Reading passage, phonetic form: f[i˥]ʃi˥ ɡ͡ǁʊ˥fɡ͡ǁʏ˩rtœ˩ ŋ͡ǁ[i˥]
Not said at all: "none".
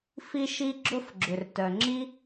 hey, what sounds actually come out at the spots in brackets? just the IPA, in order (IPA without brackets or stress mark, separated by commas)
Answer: i˥, i˥